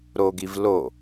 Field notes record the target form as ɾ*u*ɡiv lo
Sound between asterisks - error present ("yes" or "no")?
yes